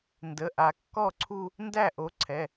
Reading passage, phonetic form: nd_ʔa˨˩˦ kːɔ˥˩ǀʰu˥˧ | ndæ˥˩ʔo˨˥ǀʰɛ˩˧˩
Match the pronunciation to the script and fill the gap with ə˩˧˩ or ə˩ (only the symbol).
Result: ə˩˧˩